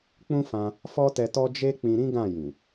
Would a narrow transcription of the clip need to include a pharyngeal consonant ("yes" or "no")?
no